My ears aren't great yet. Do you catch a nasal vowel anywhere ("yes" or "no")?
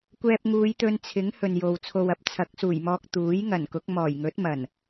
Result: no